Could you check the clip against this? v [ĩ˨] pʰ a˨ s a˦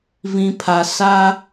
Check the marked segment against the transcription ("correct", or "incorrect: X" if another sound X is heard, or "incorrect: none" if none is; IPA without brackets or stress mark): correct